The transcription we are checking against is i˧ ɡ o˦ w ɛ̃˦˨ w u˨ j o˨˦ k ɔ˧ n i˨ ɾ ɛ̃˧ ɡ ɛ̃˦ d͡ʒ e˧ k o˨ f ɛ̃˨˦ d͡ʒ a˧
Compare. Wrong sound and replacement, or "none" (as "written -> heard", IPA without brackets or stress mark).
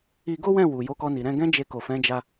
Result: none